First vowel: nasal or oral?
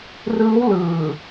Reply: oral